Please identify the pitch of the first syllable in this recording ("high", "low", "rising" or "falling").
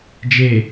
low